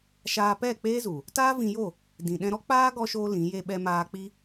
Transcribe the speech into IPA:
ʃ aː˧ p ɛ˦˨ k͡p eː˦ z u˨ | t aː˦ v ĩ˧ j o˦˨ | d ĩ˨ ɗ ɛ̃˧ ɾ ɔ˦ k͡p aː˦ ɡ ɔ˦ ʃ oː˦ l ĩ˨˦ j e˦ ɓ ɛ˦ m aː˦ k͡p i˦

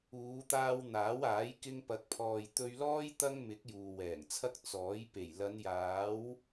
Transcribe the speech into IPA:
uː˨˧ t̪ aː˧ w n̪ aː˨˥ w aː˨˥ j k ɪ˧ ŋ p ɐ˨˥ k̚ pʰ ɔː˨ j t̪ ɵ˧ ɥ l ɔː˥ j t̪ ɐ˥ ŋ m ɪ˨˥ k̚ j uː˨ w ɛː˨˩ ŋ t͡sʰ ɐ˥ k̚ t͡s ɔː˨˥ j p e˨˩ j l ɐ˨˧ n j aː˨˥ w

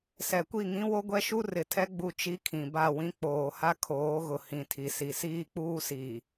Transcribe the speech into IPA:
s ɛ˨ kʷ i˦˨ ŋ ĩ˦ w o˦ ɡʷ ɛ˦ ʃ u˦ r ɪ˨ tʰ ɛ˦ ɡ͡b u˦ t͡ʃ i˦ kʰ ĩ˨ b a˦˨ w ĩ˦ k͡p oː˨ h a˦ kʰ oː˨˦ ɣ ʊ˨ h ĩ˨ tʰ i˨ s i˨ s iː˦ k͡p uː˦ s iː˨

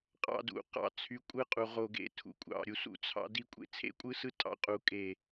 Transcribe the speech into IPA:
qʼ ɑ̰˧ d ṵ˨ q ɑ̰˧ t͡sʰ y˨˦ kʷʼ ɯ˧ qʼ u˨ ʁ o˨ ɡ ḛ˨ tʰ ṵ˨ kʷʼ ɑ̰˨ ɾʲ u˨ s ṵ˧ t͡sʰ ɑ̰˧ d i˧ kʷʼ ḛ˦ t͡sʰ ḛ˦ kʷʼ ɯ˦ s ɯ˦ tʼ ɑ̰˧ qʼ u˨ kʼ e˨

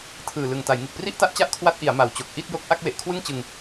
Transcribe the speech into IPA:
tʰ ɯː˨˩ l ɯ˨˩ ŋ t a˩˦ j ŋ ɯ˨˩ k̚ p r i˥˩ ʔ t a˦˥ ʔ t͡ɕ a˥˩ ʔ kʰ w a˦˥ t̚ ʔ i˩˦ a̯ m a˨˩ w t͡ɕ o˨˩ k̚ ʔ i˥˩ t̚ j o˦˥ k̚ ʔ a˥˩ k̚ w e˨˩ ʔ kʰ w ɯ˥˩ ŋ t͡ɕ ɯ˧ ŋ

